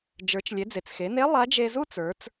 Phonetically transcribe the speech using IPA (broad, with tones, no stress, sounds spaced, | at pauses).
d͡ʒ ə˞˩˧ t͡ʃ lʲ e˩˧ d͡z e˩ t͡s x e˩˧ n e˧˥ lˠ a˧˥ d͡ʒ e˧ z u˥ t͡s ə˞˩˧ t͡s